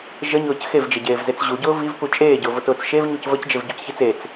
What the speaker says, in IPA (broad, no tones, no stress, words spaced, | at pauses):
ʒəɲʊːc xevd͡ʒeɟeːvzet͡s ʑuɟʊː vivpu t͡ʃʼeːɟʊːvʊtʊːt͡s ʃevɲuc vəcd͡ʒevɟucçit͡s et͡s